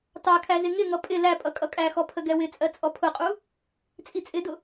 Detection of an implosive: absent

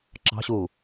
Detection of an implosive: absent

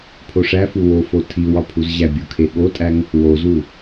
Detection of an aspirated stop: present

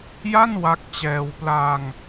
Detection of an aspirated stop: absent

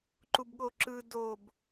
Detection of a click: present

